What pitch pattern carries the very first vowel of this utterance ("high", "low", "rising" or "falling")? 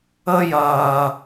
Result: high